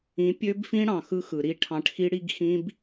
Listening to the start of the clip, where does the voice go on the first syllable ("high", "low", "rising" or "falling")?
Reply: rising